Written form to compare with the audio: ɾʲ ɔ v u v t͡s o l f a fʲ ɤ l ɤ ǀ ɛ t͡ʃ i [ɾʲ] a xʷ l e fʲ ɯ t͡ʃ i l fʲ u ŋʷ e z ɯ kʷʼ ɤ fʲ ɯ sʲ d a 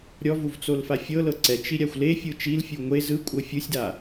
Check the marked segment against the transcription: correct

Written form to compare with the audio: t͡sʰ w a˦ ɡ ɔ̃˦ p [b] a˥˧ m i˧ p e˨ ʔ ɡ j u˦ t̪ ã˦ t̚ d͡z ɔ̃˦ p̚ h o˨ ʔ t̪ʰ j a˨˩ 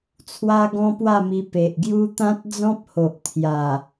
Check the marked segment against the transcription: incorrect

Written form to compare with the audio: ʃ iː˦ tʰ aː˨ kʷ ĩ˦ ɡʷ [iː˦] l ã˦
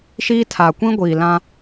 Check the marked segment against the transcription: incorrect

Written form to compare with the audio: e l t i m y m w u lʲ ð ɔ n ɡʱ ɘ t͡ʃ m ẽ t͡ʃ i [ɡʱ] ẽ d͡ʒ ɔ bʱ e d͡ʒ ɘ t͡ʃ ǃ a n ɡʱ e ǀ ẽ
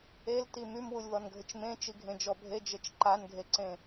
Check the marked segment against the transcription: correct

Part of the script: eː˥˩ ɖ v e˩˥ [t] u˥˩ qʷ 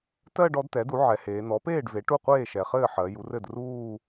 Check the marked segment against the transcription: incorrect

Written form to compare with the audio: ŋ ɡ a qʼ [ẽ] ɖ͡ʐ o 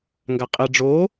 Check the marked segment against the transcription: incorrect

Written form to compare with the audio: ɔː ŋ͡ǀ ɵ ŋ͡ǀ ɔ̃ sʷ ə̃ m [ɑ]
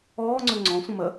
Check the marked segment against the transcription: incorrect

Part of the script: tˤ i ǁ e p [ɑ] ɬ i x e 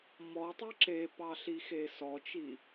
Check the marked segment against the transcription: correct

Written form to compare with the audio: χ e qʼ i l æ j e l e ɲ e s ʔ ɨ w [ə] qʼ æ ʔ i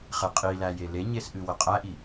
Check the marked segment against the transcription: correct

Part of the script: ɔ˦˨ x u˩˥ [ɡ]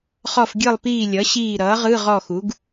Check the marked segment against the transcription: correct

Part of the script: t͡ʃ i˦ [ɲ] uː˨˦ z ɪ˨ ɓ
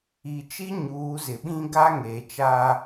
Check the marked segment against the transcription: correct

